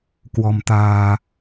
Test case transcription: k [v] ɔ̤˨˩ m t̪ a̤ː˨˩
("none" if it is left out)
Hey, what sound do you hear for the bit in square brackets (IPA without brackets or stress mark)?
w